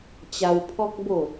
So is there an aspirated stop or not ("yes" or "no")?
yes